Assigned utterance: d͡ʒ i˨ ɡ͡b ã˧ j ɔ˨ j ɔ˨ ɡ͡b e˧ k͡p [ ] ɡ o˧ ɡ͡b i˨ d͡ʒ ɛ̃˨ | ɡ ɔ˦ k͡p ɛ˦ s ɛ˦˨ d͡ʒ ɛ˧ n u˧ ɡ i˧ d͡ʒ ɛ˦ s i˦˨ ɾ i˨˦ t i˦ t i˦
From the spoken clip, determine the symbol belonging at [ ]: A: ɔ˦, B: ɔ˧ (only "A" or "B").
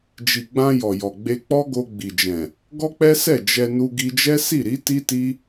A